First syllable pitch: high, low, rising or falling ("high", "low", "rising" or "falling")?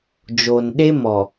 low